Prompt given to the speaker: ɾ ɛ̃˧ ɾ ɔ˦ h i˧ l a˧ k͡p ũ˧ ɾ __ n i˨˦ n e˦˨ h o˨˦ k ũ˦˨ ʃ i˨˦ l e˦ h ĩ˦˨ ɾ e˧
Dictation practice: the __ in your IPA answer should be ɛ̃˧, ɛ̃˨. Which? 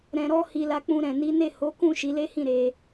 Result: ɛ̃˨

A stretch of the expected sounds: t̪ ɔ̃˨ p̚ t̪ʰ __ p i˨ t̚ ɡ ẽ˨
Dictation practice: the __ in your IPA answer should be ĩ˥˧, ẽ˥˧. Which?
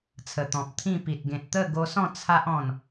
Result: ĩ˥˧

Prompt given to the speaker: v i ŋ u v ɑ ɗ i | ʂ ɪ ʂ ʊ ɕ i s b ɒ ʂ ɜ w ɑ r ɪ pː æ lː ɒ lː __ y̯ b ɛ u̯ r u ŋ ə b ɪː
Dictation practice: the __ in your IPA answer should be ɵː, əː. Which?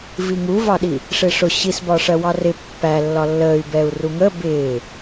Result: əː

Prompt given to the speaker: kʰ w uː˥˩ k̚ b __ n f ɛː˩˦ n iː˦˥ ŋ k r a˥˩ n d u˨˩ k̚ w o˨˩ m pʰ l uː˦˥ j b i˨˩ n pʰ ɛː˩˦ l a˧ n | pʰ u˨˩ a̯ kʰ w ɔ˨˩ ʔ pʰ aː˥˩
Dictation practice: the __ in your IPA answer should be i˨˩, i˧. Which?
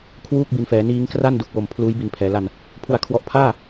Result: i˨˩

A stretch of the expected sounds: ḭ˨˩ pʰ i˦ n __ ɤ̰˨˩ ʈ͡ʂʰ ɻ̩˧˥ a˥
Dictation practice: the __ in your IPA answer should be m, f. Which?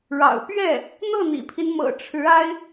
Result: m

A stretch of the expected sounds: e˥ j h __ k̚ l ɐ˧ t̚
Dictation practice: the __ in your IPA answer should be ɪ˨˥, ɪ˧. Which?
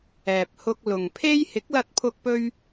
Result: ɪ˨˥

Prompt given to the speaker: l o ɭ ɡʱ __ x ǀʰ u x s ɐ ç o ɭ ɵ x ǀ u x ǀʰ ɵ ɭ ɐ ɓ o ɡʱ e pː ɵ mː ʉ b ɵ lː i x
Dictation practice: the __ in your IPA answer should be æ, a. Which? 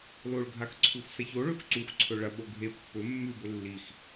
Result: a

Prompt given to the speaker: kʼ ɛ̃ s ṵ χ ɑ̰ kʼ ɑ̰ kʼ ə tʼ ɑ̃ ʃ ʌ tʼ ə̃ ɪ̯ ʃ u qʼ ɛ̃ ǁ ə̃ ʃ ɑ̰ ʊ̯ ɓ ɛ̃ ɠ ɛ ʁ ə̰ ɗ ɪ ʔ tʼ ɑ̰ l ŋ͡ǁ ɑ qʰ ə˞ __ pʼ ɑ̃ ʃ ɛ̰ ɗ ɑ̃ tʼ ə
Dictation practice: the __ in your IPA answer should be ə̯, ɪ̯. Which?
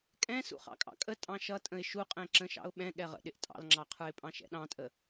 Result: ɪ̯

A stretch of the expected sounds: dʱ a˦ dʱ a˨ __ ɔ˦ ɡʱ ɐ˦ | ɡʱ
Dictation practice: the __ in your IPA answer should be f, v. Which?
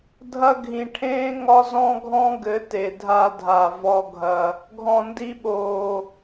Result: v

